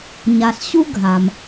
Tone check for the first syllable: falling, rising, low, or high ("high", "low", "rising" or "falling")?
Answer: low